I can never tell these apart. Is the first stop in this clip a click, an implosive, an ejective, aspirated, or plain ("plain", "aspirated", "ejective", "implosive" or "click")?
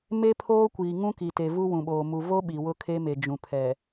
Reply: aspirated